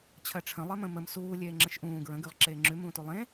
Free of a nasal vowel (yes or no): no